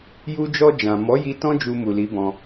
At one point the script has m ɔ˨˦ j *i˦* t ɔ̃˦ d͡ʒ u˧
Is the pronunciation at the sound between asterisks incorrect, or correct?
incorrect